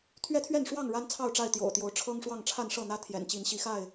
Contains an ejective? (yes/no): no